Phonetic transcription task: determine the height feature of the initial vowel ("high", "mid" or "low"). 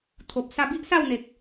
mid